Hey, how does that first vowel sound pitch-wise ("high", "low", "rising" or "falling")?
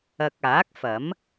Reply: low